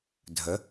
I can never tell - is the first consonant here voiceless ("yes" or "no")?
no